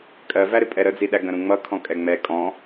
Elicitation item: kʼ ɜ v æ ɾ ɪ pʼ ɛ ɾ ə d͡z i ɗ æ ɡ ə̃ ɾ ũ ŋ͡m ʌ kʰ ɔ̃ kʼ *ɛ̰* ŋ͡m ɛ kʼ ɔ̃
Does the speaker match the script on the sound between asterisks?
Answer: no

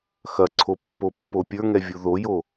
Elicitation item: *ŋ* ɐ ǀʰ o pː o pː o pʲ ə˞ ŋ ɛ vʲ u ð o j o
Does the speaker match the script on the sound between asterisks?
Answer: no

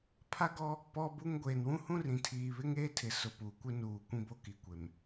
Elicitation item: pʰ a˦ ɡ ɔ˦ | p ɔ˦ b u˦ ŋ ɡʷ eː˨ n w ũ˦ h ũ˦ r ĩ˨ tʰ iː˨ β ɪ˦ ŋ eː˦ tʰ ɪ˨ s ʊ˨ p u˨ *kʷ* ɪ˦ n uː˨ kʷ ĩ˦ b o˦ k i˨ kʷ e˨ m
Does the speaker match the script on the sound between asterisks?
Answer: yes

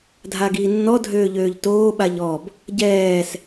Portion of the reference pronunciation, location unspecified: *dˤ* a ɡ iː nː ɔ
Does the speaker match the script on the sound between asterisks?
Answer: no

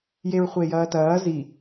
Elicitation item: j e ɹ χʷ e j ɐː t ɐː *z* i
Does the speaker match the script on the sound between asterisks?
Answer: yes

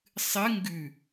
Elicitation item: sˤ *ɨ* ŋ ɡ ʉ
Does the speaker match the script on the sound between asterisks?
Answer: yes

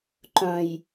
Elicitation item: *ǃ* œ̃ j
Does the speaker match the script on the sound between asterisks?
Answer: yes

